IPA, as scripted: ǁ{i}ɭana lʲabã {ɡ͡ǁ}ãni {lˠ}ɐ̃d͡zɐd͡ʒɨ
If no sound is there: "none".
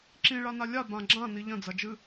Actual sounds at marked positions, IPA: ĩ, ɡ͡ǁ, ʎ

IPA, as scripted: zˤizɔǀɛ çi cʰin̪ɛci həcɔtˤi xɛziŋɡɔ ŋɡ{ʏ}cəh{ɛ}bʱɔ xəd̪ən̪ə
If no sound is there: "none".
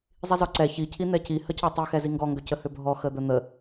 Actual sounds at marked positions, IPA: ʏ, ʏ

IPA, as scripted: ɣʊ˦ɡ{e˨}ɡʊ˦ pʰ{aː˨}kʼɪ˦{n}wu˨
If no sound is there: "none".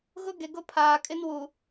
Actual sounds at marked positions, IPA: e˨, aː˨, n

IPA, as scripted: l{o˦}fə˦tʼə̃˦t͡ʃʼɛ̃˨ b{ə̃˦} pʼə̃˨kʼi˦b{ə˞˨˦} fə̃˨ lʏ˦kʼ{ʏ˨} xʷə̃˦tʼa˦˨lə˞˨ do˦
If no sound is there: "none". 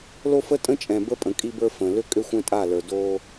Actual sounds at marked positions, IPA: o˦, ə˦, ə˞˦, ʏ˦

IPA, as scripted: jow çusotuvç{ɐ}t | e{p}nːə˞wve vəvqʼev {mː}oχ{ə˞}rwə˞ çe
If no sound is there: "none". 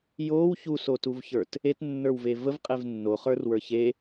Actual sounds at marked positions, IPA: ə˞, t, nː, ə˞

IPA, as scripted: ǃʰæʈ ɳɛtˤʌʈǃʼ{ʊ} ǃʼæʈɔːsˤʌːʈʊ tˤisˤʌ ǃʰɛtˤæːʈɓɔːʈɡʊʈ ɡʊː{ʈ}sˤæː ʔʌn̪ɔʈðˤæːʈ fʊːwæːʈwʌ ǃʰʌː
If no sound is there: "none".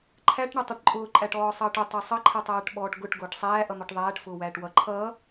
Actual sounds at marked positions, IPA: ʊː, ʈ

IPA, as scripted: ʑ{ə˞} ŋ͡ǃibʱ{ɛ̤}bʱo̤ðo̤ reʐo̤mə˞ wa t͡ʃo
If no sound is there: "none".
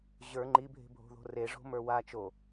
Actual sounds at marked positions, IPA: ə˞, e̤

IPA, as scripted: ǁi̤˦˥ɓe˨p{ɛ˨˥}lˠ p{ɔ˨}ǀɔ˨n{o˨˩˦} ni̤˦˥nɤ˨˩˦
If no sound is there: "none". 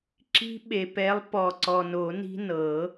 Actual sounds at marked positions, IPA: ɛ˨˥, ɔ˨, o˨˩˦

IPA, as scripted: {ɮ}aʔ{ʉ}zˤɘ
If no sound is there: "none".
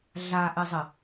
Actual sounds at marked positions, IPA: ɮ, ɘ

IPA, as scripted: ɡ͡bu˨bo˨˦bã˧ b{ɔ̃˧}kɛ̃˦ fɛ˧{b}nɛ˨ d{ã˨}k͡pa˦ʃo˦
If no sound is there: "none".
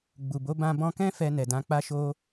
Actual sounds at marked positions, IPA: ɔ̃˧, none, ã˨˦

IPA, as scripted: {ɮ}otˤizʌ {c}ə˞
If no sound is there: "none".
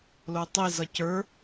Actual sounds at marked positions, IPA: l, c

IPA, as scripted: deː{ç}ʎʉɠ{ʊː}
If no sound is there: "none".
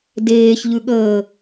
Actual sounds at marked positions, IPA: ç, əː

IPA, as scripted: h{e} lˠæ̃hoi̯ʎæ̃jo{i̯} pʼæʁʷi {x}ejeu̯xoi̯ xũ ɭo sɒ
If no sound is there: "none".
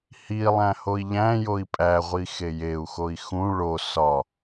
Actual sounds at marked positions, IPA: i, i̯, x

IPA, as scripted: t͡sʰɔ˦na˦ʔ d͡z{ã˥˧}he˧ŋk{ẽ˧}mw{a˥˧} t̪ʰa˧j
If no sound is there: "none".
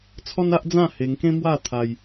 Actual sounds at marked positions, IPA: ã˥˧, ẽ˦, a˥˧

